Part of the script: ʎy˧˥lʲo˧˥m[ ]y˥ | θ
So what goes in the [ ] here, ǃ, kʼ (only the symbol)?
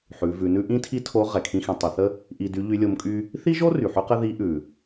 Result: kʼ